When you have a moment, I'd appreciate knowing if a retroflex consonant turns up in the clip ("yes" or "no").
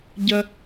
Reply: no